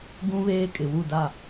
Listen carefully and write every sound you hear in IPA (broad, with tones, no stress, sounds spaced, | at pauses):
ɡ ũ˦ β eː˦ kʼ ɪ˨ w u˦˨ d a˦˨